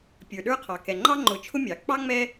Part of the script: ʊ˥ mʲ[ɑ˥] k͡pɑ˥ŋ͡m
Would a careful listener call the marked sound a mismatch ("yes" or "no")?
yes